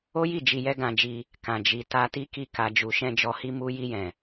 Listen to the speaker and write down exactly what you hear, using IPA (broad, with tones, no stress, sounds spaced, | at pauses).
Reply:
o˦ j i˦˨ d͡ʒ i˧ j ɛ˦ ɡ ã˧ d͡ʒ i˧ | k ã˨ d͡ʒ i˨ t a˧ t i˦ k i˦˨ k a˧ d͡ʒ u˧ ʃ ɛ̃˦ d͡ʒ ɔ˧ h i˦ m u˧ j i˧ j ɛ̃˨